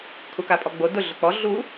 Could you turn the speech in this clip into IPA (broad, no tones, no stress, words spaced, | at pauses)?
kʰukapʼɔɡ͡bo dʊ ɮʊk͡pɔ ɮu